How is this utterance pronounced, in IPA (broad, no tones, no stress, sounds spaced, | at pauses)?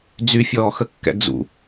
d͡z y fʲ ɔː x ə kː ɛ̰ d͡z ṵ